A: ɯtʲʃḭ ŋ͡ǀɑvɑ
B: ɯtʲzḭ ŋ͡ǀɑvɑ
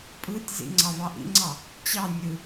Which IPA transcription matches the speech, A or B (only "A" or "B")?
B